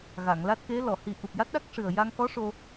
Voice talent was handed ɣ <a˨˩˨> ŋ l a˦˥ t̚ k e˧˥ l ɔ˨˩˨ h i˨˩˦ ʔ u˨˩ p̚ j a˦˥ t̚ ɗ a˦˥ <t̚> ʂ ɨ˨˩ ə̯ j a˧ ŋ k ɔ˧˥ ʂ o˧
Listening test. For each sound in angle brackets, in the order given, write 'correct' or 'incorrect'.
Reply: correct, incorrect: k̚

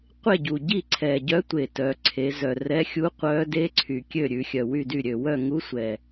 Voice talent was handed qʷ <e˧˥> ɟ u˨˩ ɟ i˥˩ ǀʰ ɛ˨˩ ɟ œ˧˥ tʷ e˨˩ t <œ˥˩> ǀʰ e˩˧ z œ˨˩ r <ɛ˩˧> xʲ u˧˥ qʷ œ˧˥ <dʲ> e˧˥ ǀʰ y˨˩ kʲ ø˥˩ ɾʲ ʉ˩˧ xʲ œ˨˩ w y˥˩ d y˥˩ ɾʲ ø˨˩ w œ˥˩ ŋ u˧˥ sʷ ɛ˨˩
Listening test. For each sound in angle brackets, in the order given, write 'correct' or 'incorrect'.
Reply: incorrect: e˥˩, incorrect: œ˩˧, incorrect: ɛ˧˥, incorrect: d

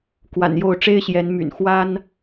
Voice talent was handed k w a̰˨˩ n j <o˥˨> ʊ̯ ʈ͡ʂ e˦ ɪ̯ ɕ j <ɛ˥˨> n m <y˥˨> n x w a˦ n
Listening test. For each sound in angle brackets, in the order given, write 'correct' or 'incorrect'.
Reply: correct, incorrect: ɛ˨˦, incorrect: y̰˨˩

